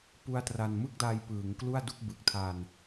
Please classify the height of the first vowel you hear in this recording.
high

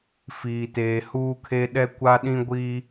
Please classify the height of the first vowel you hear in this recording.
high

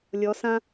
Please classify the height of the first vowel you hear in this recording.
mid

